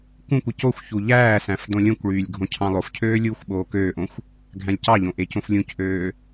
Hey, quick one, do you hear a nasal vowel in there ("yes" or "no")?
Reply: yes